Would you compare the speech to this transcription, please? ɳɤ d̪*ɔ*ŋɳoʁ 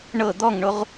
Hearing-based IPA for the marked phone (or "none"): ɔ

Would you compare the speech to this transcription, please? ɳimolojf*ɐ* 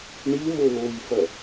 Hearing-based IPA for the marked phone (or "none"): ɐ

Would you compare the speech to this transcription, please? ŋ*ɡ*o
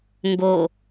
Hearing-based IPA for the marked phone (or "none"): ɡ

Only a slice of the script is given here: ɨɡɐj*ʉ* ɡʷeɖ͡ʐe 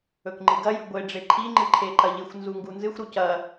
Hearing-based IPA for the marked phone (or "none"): ʉ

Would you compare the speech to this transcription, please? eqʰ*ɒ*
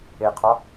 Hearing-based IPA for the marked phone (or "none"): ɒ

